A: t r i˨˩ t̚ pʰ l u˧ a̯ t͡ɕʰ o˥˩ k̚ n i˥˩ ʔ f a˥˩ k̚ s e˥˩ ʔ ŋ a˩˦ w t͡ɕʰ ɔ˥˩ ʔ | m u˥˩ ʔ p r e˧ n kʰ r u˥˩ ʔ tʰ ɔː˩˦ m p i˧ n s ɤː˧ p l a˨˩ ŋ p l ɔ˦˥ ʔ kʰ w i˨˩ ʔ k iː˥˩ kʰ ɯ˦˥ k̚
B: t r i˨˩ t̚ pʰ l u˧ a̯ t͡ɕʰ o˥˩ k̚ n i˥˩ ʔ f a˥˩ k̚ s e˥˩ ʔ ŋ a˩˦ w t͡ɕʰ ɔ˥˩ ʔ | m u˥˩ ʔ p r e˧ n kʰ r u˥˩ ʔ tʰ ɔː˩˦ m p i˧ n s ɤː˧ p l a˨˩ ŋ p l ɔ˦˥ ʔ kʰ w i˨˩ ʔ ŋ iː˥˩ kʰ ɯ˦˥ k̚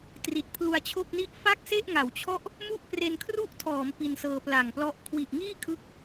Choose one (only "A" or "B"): B